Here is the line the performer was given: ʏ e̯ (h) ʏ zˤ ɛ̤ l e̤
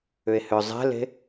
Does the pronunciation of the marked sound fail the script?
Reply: no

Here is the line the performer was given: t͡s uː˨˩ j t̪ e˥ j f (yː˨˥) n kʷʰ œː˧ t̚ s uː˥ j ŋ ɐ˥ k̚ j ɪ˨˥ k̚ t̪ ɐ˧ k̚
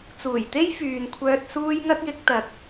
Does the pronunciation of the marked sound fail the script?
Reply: yes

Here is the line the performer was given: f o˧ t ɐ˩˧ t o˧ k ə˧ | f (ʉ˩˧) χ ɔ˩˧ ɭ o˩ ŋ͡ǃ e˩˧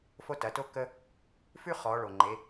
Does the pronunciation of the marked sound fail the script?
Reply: yes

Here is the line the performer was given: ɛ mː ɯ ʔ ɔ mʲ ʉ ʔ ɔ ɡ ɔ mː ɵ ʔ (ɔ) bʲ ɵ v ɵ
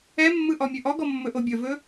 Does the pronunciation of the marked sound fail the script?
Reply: yes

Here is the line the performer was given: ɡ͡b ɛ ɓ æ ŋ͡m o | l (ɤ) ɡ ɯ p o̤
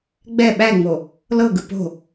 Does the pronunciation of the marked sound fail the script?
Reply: no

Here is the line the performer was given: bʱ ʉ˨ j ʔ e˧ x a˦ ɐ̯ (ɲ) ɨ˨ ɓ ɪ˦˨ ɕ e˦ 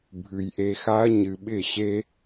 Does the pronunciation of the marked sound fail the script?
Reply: no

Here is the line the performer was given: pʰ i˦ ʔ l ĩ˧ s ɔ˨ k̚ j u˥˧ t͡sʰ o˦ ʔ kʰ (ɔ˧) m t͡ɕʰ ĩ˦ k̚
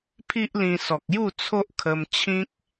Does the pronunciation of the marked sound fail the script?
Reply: yes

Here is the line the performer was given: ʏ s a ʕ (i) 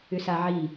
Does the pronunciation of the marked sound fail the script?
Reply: no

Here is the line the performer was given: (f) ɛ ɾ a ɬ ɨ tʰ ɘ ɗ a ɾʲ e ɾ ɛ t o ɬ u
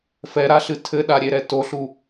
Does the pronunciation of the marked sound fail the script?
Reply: no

